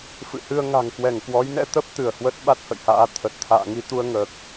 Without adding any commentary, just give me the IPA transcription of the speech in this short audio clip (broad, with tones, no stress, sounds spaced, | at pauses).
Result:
f ɨ̰˧˨ h ɨ˧ ə̯ ŋ a̤˨˩ ŋ k w ɛ˧˩ ŋ k w ɔ˨˦ j n ɛ̰˧˥ t̪ ə˦˥ p̚ t̪ ɨ˧˩ ə̯ h w ə˦˥ t̚ ɓ a˦˥ t̚ h ə̰˧˨ j h a̰ː˧˥ t̪ʰ ə˨˩ t̚ t̪ʰ a̰ː˧˨ ŋ i˧ t̪ u˧ ə̯ ŋ əː˨˩ k̚